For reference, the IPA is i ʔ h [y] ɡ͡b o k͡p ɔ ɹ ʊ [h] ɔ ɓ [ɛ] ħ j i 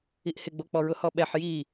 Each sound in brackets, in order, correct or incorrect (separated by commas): incorrect, correct, correct